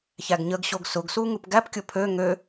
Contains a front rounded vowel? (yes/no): yes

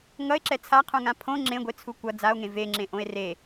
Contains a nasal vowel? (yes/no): yes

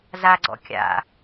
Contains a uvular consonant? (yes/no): no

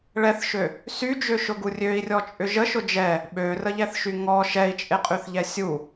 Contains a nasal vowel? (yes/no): no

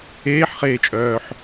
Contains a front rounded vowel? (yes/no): yes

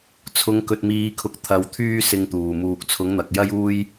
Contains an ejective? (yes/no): no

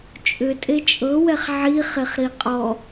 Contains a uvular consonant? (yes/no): yes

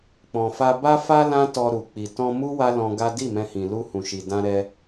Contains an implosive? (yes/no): no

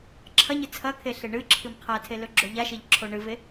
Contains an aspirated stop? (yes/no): yes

